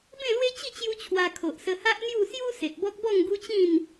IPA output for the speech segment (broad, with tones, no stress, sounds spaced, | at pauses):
b ẽ˥˧ l w e˦ t͡ɕ i˥˧ t͡ɕ j u˦ t͡ɕʰ w a˧ kʰ o˨ ʔ s ə˧ h a˦ ʔ n̪ j u˥˧ s j u˦ s e˨ t̚ b ɔ˦ k̚ b ɔ˥˧ ŋ ɡ u˦ t͡ɕ ĩ˥˧ n